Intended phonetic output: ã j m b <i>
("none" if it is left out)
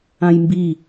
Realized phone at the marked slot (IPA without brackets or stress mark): i